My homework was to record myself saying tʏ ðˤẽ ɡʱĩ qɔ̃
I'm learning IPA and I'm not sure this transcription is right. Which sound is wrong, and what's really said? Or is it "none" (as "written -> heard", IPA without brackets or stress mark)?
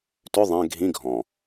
q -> ɡʱ